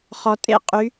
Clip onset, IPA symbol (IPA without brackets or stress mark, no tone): χ